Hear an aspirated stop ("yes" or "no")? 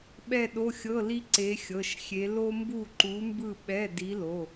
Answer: no